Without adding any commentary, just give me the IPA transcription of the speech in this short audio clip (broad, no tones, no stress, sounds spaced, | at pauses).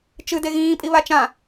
t͡ʃ ɨ d e ɣ ĩː pʼ i β a t͡ʃ ã